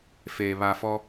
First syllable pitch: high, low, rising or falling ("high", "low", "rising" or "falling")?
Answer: low